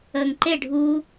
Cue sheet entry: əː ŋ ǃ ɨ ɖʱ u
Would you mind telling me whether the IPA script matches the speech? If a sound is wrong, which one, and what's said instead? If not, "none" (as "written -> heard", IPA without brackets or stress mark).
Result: ɨ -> e